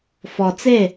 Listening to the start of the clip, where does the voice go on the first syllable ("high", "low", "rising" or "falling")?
low